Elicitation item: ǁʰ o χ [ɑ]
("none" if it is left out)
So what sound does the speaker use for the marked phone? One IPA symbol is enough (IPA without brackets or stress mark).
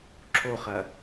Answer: ɐ